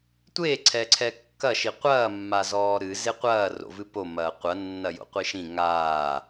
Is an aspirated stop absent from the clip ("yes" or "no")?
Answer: no